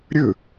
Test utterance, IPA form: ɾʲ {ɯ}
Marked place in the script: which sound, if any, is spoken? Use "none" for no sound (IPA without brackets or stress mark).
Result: ɯ